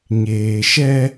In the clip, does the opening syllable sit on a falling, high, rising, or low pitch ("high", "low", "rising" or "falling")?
low